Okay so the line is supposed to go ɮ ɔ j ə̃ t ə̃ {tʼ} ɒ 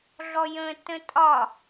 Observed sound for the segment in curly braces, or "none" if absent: tʼ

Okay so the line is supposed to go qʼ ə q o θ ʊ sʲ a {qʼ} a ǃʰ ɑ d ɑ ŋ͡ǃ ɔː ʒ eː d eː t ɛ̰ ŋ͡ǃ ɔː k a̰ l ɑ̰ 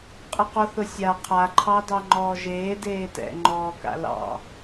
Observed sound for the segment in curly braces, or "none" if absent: qʰ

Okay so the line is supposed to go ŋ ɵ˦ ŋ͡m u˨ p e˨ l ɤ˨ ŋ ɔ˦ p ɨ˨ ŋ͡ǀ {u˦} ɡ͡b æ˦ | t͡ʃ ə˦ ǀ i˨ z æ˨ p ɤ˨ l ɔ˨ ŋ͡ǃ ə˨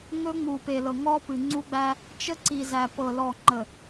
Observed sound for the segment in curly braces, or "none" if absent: u˦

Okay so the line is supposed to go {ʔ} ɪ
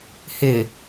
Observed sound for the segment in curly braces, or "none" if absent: h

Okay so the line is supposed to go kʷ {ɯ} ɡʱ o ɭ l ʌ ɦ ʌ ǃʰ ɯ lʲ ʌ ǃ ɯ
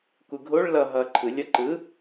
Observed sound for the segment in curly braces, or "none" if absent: ɯ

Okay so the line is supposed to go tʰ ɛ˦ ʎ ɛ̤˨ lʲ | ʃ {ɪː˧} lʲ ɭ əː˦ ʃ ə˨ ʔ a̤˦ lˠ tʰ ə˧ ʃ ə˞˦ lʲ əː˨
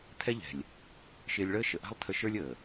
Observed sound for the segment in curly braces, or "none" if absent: ɪː˧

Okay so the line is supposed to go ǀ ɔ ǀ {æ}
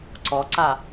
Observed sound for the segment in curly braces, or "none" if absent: a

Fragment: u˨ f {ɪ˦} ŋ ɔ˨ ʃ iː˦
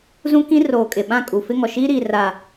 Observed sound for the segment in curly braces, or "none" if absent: ɪ˦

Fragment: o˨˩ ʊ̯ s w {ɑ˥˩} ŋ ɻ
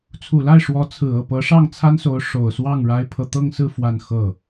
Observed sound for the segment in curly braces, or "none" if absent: ɑ˥˩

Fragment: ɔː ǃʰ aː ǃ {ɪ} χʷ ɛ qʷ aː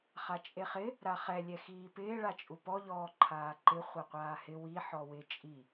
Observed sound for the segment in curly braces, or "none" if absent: ɪ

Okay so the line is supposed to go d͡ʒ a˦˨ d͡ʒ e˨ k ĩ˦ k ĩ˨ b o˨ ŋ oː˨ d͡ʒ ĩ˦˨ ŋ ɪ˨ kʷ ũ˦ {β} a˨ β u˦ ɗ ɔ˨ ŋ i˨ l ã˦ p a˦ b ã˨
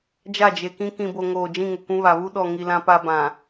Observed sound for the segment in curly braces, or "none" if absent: β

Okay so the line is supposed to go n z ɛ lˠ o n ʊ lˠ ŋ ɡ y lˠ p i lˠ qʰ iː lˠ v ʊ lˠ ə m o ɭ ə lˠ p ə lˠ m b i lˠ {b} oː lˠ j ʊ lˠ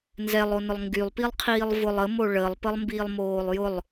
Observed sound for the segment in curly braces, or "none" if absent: m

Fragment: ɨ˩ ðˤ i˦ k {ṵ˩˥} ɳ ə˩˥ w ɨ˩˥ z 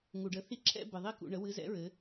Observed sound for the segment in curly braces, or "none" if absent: ṵ˩˧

